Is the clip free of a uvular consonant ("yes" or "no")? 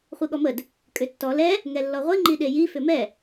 no